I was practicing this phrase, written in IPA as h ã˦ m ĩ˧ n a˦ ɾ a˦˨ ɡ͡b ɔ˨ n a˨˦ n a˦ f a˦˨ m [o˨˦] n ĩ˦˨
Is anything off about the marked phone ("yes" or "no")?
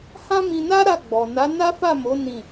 no